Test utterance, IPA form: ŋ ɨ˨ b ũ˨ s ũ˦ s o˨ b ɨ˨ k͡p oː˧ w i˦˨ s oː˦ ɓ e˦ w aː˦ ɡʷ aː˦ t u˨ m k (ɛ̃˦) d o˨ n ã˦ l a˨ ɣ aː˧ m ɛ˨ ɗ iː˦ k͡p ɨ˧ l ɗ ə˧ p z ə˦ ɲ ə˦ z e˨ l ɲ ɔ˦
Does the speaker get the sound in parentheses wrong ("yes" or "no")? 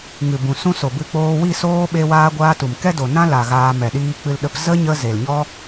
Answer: yes